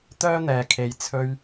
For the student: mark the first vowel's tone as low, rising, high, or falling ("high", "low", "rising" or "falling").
high